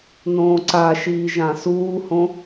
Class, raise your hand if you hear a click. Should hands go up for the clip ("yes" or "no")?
yes